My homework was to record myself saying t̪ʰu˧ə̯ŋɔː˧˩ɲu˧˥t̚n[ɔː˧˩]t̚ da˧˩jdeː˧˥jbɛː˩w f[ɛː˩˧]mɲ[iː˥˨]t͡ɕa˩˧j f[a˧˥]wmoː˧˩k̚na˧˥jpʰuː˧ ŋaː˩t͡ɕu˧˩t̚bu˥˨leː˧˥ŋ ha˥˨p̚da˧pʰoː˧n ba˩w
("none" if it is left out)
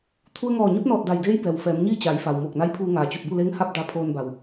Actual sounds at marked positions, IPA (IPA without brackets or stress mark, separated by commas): ɔː˧˩, ɛː˩˧, iː˥˨, a˩